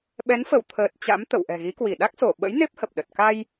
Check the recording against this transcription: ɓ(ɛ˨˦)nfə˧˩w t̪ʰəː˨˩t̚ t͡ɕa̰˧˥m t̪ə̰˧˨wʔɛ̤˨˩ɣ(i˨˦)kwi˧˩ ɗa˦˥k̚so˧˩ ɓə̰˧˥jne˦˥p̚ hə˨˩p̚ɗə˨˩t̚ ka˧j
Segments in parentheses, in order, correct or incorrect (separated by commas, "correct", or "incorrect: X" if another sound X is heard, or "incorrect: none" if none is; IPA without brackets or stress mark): correct, correct